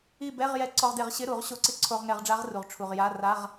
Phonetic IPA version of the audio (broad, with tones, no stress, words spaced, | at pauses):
i˥˨ bɛ˧˥˧ʁ jɛ˧ǀɔ˧ʁde˧˩˧ʁ ɕɪ˧˥˧ɾu˧˩˧ʁɕo˧˥ǀɪ˧ ǀʰo˧ʁŋɛ˧˩˧ʁɖ͡ʐa˧˥ʁru˩ʁ ʈ͡ʂʰu˩ʁ ja˧˥˧ ra˧˥˧ʁ